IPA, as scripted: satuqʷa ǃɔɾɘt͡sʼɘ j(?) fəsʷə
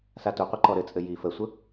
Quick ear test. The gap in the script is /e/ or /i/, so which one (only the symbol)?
i